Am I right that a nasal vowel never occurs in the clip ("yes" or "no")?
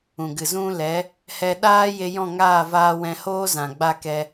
no